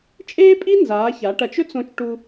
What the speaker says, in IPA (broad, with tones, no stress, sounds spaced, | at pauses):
t͡ʃʼ eː˥ pʼ i˥ n z aː˩˧ ç aː˩˧ ʈ ɐ˩˧ t͡ʃ ɵ˥ t͡s õ˧ t͡ʃ ʈ u˧